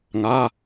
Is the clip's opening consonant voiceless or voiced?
voiced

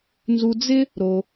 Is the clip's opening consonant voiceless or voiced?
voiced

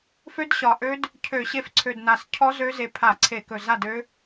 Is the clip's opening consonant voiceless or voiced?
voiceless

